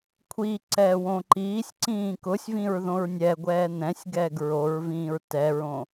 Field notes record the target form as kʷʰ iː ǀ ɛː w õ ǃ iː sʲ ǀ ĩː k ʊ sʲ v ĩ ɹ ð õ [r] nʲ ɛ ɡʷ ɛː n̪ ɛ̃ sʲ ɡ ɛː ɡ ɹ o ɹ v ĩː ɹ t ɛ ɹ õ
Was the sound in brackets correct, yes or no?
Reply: no